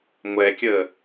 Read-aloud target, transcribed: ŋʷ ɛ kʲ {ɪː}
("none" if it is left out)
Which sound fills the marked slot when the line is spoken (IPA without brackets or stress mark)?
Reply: əː